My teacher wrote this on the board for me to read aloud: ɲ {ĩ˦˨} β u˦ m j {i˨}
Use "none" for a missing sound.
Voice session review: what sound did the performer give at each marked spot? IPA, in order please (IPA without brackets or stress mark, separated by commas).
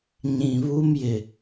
ĩ˨, ɪ˨